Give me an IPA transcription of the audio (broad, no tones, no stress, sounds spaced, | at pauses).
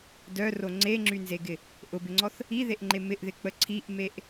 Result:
d œ r o ŋ͡ǀ e ŋ͡ǁ y n z e ɡ ɪ | ʔ ʊ b ɪ ŋ͡ǀ ɔ θ | i ð e ʔ ŋ͡ǃ e m ɪ ʔ ð ɪ k͡p ə ǀʰ i ʔ m e ʔ